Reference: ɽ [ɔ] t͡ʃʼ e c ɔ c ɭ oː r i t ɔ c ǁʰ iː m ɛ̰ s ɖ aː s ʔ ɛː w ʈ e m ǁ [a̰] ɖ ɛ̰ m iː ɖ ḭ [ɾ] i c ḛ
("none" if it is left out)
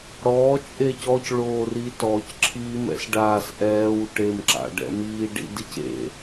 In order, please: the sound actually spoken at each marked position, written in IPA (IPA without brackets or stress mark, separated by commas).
ɔː, a̰, d